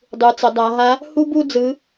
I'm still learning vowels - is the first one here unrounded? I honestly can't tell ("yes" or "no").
yes